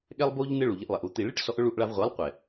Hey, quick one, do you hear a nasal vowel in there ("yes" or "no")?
no